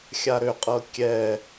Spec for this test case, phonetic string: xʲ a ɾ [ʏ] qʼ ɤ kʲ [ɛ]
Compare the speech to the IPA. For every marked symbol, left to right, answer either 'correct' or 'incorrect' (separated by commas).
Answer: correct, correct